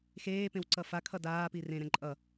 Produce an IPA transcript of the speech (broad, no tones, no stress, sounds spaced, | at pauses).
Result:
x eː p ẽ w ǀ ʌ f a kʰ ʌ d aː p i r ẽ ɾ ɛ̃ ǃʼ ʌ